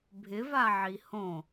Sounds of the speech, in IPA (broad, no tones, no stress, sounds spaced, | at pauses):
bʱ ɪ v a ʕ i h õ